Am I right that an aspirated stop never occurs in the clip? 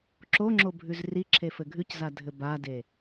no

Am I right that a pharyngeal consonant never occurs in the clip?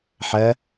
no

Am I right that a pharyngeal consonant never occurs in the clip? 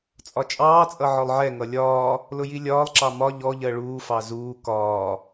no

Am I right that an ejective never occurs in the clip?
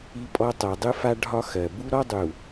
no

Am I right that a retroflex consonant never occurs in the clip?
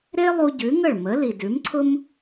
no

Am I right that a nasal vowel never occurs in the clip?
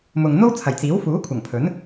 yes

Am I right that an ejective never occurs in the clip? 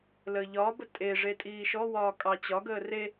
no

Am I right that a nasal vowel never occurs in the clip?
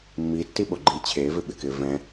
no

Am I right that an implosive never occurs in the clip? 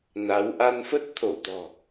yes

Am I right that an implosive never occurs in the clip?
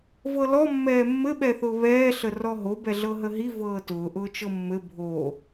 no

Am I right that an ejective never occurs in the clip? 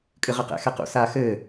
no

